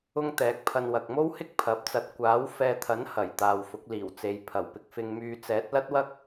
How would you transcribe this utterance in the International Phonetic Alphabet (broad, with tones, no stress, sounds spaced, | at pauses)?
ʊ˥ ŋ t̪ ɛː˨˥ k̚ pʰ ɐ˧ n w ɐ˨ k̚ m o˥ w h ɪ˥ k̚ pʰ ɐ˨˥ p̚ t͡s ɐ˧ t̚ kʷ aː˨˥ w f ɛː˧ t̪ʰ ɐ˨˥ n h ɐ˨˩ j t̪ aː˨ w f ʊ˨˥ k̚ l iː˨˩ w t͡s e˨˧ j pʰ ɐ˨˩ w p ɪ˧ k̚ f ɪ˧ ŋ m yː˧ t͡s ɛː˨˥ t̚ l ɐ˥ t̚ w ɐ˥ k̚